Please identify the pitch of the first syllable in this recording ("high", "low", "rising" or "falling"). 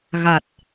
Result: low